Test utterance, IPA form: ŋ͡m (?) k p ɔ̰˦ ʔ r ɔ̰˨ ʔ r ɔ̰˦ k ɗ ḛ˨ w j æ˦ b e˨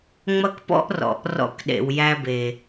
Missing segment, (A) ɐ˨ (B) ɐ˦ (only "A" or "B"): B